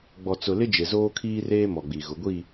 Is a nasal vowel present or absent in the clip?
absent